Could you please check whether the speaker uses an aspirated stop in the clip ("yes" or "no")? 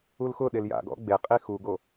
no